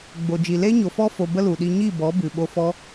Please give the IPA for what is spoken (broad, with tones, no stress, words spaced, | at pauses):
ɡ͡bo˨d͡ʒi˨ le˦ɲo˨fɔ˦fo˨ bə˦lu˨ɗi˧ ɲi˦˨bɔ˨˦ bɨ˨ɓo˧fɔ˦